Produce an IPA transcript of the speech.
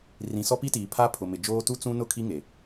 rĩ˨sɔ˦pi˦tiː˨ pʰa˦pʰʊ˨mɪ˨ d͡ʒoː˦ tu˦t͡sũ˦nʊ˦˨kʰi˦ ŋe˨

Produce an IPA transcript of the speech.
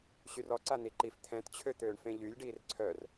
ɕyrɔǀa n̪iǃif t̪ʰɛ̃tt͡ɕʰø t̪øːɳfẽʎylʲɖiːr ǀʰœr

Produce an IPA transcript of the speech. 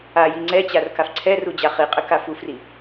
aji ŋ͡ǀɛt͡ɕarkaf ǀʰɛrud͡ʑa χiqʼɘka fufri

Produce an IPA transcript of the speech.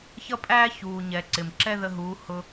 çʌ˥pʼæː˥ çuː˩ɲɛ˩ ǀɪ˩mǁɛ˥ ðə˧ɦuː˩˧ hʊ˧

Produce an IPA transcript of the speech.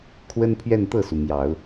kʰwə˥npʰɥɛ˥˧nt̪ɤ˥˩su˩ mjɑ˨˩˦ʊ̯

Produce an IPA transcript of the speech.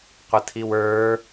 qʷətʰiwə˞

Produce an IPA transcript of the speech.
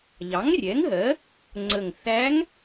ʎɑ˩˥ŋrʲɛ˩˥ŋɦɜ˩˥ | ŋ͡ǀə˨˩ŋθæ˧˥ŋ

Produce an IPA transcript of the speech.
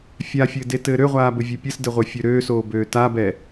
fʲafʲɘːdetɘː ɾøʁʷaːbɘvʲe pʲɘsdɘʁʷɘfʲø ɾøːsoːbøː tabɛ

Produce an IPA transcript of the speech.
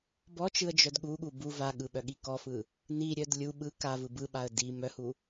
bɔt͡ʃɯə̯ d͡ʒœdɠuɠu bu vaɠɯ ɓœɠikɔfɯ | niɾʲœd lʲu ɓɯ kavɯ bɯɓaə̯ di mœhu

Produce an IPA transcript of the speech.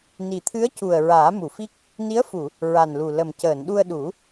ni˨˩t̪ʰɨ˧˥ə̯cu˨˩ə̯ ɹaː˨˩˦mu˨˩˨fi˦˥k̚ | ni˧˥ə̯fu˨˩˨ | ɹa˨˩nlu˨˩ lə˨˩m cəː˨˩˨nɗu˧ə̯ɗu˨˩˦

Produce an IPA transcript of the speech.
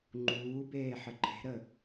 ŋ͡ǃuːbeː ħəǃʰe̤ɾə

